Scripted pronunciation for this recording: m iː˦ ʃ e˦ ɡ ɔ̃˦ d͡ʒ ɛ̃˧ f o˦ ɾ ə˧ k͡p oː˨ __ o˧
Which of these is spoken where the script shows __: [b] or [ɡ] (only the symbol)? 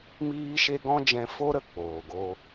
ɡ